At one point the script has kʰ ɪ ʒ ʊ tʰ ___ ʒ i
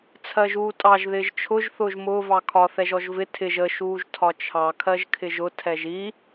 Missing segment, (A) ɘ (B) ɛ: B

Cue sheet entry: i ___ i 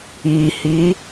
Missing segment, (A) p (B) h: B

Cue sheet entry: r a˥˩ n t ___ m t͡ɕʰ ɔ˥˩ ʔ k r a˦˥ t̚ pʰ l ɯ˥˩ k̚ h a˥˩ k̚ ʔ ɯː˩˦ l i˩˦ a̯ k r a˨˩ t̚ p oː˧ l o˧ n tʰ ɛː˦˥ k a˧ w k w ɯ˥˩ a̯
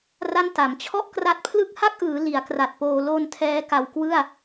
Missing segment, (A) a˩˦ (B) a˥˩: A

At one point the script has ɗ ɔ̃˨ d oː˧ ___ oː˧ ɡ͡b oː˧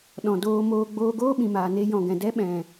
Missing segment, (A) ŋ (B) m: B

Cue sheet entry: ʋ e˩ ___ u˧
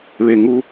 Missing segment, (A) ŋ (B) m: A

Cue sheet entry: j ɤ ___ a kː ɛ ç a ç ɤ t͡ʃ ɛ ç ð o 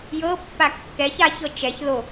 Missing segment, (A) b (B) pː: B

